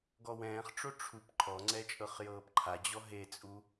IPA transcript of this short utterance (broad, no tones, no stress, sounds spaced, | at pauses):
ɡ ɔ w ɛ̃ː χ ʈ͡ʂ o ʈ͡ʂʰ u p ǃʰ ɔ ŋ͡ǀ ɛ t͡ʃʼ ɤ χ j ɤː p ǃʰ a d͡ʑ ɔ ɦ e t͡sʼ u